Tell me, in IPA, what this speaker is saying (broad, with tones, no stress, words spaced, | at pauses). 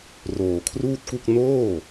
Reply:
roː˨˩kʰruː˥˩t̚ku˥˩k̚ noː˥˩